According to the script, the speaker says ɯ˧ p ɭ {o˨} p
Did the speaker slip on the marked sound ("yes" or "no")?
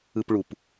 yes